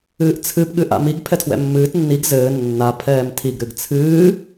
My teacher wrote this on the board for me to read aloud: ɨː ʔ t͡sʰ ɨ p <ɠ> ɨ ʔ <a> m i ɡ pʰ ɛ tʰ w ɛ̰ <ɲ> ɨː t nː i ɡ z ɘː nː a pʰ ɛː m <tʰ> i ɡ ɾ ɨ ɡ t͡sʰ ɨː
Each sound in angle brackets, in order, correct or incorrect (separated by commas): correct, incorrect, incorrect, correct